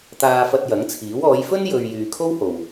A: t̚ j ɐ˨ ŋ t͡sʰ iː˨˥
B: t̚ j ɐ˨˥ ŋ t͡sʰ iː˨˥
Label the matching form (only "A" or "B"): B